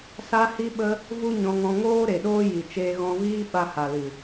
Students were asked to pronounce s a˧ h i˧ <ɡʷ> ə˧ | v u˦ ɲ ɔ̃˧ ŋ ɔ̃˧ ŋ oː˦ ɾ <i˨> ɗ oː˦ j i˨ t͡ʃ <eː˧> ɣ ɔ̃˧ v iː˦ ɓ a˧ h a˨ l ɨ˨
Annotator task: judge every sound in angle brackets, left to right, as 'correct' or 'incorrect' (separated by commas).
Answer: incorrect, incorrect, correct